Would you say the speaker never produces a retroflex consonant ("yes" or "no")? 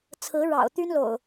no